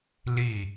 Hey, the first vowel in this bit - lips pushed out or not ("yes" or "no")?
no